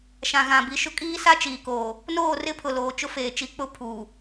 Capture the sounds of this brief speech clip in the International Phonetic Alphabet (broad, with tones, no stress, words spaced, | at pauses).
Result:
ʃã˨ɣã˨bi˨ʃʊ˦ kʼiː˦sa˦t͡ʃiː˨koː˨ | noː˦˨rɪ˦pʰʊ˨loː˨ t͡ʃʊ˦feː˨ t͡ʃi˨˦k͡pʊ˦ pʰuː˨